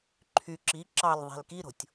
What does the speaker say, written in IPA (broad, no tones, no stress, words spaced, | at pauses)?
ǃʰy ǁi ǁɑlðˤe̤l kiɾo̤tʲ